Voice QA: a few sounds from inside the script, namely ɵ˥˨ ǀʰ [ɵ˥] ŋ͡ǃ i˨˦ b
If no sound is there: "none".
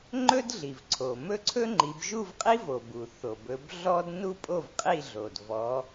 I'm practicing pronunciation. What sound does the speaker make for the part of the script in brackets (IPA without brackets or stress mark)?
ɵ˥